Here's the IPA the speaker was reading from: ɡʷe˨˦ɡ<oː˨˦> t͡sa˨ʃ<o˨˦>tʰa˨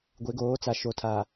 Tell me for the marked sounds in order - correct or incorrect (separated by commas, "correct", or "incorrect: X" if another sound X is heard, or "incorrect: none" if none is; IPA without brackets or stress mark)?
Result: correct, incorrect: o˨